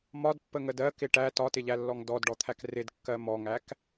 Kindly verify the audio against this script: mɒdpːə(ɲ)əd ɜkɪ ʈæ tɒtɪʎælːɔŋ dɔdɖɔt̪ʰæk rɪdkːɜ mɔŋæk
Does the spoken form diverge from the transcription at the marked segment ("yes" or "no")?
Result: yes